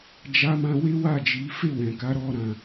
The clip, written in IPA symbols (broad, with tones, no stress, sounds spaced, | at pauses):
d͡ʒ a˧ m ã˧ w e˦ w a˦˨ d͡ʒ i˨˦ f e˦˨ w ɛ̃˨ k a˨˦ ɾ ɔ˦ ɾ ã˧